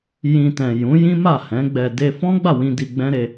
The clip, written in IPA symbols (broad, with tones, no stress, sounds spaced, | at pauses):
j ĩ˨ t ɛ̃˨ j ũ˨˦ j ĩ˦ m a˦˨ h ɛ̃˨˦ ɡ͡b ɛ˧ d e˧ f ɔ̃˦ ɡ͡b a˦˨ w ĩ˧ d i˧ ɡ͡b ɛ̃˦ ɾ e˧